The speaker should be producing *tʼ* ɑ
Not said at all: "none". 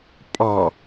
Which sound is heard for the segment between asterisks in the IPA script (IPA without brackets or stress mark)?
pʼ